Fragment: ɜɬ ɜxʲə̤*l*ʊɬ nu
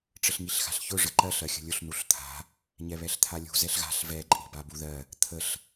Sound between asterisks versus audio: incorrect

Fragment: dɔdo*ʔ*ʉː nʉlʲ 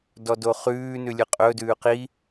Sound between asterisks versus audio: incorrect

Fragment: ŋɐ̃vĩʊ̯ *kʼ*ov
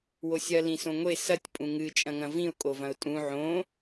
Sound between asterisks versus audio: correct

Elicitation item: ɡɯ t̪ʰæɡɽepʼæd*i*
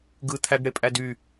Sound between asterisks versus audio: incorrect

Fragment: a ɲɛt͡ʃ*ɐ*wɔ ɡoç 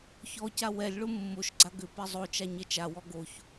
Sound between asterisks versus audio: incorrect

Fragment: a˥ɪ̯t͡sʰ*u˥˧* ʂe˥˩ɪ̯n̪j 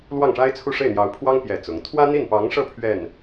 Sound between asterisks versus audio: correct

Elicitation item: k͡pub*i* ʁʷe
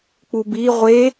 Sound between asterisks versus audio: correct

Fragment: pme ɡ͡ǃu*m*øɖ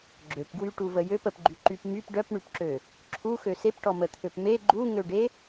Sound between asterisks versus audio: incorrect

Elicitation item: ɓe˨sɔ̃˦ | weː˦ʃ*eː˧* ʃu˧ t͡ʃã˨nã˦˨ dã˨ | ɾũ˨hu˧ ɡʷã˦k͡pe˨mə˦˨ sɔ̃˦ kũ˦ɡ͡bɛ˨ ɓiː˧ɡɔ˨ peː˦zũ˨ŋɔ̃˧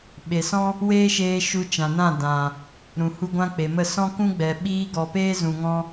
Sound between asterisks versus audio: correct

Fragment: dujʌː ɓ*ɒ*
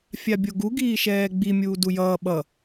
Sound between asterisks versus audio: incorrect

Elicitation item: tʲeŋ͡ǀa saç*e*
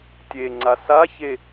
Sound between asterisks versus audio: correct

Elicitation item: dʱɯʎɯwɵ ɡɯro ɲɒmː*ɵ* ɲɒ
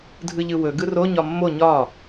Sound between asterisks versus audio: incorrect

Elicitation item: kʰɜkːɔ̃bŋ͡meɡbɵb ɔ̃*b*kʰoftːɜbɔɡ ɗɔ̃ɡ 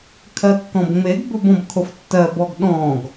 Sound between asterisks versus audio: correct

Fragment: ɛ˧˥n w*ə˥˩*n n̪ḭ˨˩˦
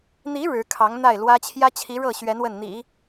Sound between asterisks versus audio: correct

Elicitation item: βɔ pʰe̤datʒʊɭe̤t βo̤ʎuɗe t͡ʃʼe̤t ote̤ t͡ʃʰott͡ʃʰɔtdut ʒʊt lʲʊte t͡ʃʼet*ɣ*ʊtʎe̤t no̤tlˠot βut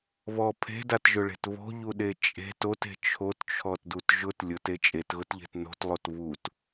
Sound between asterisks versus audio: correct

